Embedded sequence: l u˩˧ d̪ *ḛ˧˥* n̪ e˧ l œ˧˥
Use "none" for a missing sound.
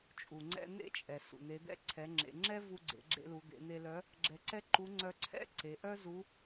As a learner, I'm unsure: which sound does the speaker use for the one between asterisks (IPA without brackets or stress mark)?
ḛ˩˧